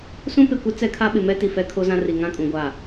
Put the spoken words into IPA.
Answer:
s ũ˦ p ɪ˨ kʷ ɪ˦ t͡s ɛ˦ kʰ a˦ ɓ ɪ˨ m ɛ˦ t i˨ f ɛ˦ kʰ o˦ z ã˦ r i˨ ŋ ã˦ kʼ ũ˨ ɡʷ a˦˨

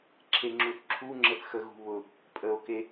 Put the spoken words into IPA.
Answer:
ǁʰ e ŋ͡ǁ u θ ǁʰ u ŋ͡ǁ ə θ x ə ɣ ṳ β ʊ | pʼ ə o̯ k e

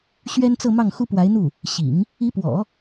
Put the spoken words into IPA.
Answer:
ɕ ɥ ɛ˥ n t͡s ɤ˥˧ m ɑ˥˩ ŋ x u˥ p w a˧˥ ɪ̯ n̪ u˥˩ | ɕ ḭ˨˩˦ ŋ | i˧˥ p w ɔ̰˨˩˦

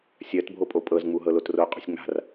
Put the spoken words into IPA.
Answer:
sʲ ɜ t bʱ o pʼ o pʼ ɤ z ŋ͡m u ɦ ɤ l o t r o qʼ o̤ sʲ ŋ͡m a̤ r

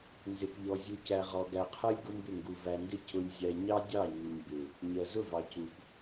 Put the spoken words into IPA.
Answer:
n z ɪ˨ p ʎ ɔ˨ zʲ u˨ c æ˨ ʁ ɔ˨ ɡ æ˨ qʰ ɜ˦ lʲ ɡ ʊ˦ m b ɪ˦˨ ŋ ɡ u˨ v æ˨ n d ɪ˦ c ʊ˨ lʲ zʲ æ˨ ɲ ɑ˦ dʲ ɑ˦˨ ɲ u˨ ɲ b ɪ˨ | ɲ ɜ˨ z ʊ˦˨ v ɑ˨ c u˨ p

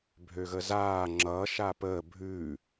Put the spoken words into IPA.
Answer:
bʱ ø ɣ ə z aː ŋ͡ǁ ʌ ʃ a p əː bʱ ʉ

